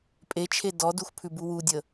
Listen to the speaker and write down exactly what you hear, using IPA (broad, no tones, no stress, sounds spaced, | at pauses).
pʼ e t͡ʃʰ e d ɔ d u x pʰ ʉ b u w u dʲ ə